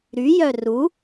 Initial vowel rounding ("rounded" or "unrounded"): rounded